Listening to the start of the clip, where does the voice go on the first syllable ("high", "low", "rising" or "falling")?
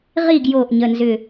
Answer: falling